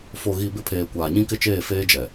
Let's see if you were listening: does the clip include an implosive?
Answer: no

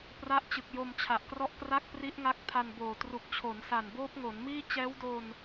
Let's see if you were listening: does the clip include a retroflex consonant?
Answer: no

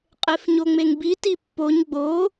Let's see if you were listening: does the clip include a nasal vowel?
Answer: no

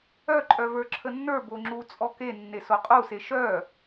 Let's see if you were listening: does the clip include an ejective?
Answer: yes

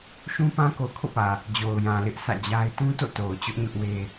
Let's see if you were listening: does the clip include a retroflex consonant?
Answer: no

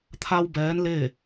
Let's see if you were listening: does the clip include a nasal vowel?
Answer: no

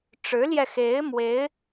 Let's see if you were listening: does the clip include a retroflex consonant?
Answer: yes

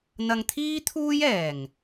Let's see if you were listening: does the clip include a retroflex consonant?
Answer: no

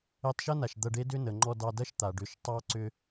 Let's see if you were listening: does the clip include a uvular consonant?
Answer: no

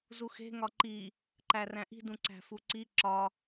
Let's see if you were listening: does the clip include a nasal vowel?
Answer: yes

